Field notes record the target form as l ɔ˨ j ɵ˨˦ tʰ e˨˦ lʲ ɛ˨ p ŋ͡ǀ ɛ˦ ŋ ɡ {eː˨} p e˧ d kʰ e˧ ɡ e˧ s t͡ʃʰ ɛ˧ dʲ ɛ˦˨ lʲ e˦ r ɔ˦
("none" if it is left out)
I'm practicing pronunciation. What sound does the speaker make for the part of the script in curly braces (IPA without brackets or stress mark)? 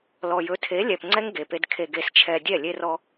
e˨